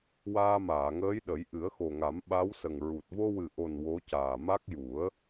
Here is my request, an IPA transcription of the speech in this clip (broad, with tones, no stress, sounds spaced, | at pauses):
w aː˧ m aː˨˩˨ ŋ əː˧˥ j ɗ ə˨˩˦ j ʔ ɨ˨˩˦ ə̯ x o˨˩ ŋ a˨˩˦ m ɓ a˧˥ w s ə˨˩ ŋ ɹ u˨˩ t̚ v o˧ w ɨ˨˩ ʔ o˨˩ n w o˧˥ c aː˨˩ m a˦˥ k̚ j u˨˩˦ ə̯